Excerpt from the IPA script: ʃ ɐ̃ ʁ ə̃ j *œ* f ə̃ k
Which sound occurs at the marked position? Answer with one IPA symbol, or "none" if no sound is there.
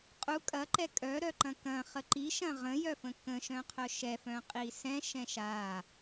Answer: œ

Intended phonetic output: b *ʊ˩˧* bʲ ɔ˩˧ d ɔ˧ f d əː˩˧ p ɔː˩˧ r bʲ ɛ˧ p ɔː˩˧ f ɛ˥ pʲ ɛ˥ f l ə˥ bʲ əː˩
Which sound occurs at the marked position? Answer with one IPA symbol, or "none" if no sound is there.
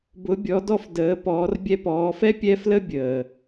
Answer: ʊ˩˧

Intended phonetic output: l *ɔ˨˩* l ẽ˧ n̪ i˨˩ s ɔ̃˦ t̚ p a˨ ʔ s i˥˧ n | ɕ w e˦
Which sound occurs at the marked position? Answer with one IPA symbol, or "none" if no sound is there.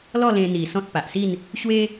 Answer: ɔ˥˧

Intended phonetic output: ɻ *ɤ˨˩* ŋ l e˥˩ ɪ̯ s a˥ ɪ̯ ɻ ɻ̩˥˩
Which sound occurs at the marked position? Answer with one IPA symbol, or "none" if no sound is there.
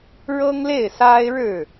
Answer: ɤ˥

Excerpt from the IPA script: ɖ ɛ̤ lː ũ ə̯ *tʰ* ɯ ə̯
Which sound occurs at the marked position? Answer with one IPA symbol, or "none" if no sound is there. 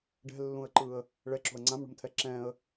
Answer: ǃ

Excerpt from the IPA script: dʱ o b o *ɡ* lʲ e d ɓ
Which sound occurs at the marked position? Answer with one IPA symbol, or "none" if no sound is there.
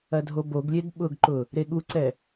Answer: ɡ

